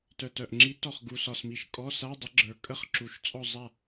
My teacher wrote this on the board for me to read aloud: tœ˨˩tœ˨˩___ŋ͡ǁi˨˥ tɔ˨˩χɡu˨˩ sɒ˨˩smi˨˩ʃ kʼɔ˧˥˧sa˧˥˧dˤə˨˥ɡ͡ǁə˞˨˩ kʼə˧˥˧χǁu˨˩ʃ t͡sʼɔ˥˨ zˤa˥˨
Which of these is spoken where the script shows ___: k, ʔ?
ʔ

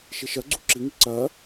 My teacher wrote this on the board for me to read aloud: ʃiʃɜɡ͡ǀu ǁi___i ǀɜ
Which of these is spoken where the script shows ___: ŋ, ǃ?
ŋ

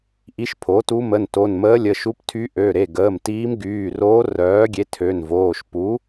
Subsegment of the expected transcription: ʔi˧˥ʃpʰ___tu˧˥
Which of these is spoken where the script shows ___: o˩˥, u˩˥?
o˩˥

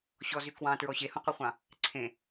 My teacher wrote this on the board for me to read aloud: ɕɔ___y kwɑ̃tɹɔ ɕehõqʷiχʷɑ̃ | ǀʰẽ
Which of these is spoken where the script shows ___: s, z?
z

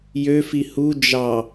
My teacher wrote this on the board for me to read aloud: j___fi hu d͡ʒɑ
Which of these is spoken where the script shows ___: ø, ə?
ø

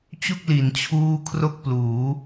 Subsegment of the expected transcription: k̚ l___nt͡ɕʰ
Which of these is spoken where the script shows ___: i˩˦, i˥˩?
i˩˦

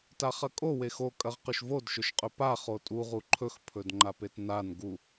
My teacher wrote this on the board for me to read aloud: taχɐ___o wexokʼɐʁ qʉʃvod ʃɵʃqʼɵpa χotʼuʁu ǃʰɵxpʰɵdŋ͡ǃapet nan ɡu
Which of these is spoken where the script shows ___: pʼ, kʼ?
kʼ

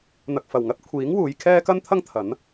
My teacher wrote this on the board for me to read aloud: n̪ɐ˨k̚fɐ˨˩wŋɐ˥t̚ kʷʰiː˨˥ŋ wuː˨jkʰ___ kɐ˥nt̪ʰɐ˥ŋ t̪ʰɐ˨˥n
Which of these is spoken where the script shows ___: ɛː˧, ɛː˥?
ɛː˥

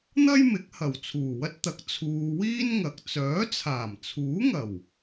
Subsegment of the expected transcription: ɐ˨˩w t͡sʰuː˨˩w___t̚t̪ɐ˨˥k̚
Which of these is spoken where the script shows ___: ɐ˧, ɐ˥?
ɐ˥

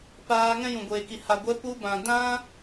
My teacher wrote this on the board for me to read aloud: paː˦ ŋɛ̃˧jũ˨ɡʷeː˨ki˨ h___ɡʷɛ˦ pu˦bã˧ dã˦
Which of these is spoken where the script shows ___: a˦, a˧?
a˧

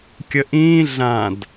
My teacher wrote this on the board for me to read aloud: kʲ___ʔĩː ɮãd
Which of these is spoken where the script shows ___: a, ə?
ə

